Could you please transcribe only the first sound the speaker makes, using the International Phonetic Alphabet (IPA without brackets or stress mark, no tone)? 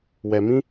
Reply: w